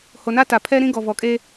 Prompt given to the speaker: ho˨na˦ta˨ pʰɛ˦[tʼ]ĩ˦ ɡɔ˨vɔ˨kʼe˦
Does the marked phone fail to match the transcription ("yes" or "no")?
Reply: yes